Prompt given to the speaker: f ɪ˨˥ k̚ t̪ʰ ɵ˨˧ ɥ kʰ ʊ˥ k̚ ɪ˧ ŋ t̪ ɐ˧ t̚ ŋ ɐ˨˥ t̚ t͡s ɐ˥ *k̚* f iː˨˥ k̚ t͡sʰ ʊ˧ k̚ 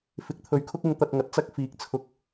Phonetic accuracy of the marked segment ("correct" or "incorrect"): correct